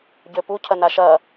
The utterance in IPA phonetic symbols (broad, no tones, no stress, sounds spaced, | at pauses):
ɟ ø p u cʰ ɐ n a ʃ ɐ